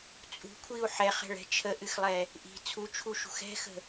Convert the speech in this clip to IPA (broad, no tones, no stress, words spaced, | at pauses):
t͡sʼṳkʷʰiu̯ ħɛχɛ̤ɭɛ̤ t͡ʃʰəʔɨxlˠɛ | ʔi̤ t͡sʰut͡ʃʰuʃṳx ɛ̤xə̤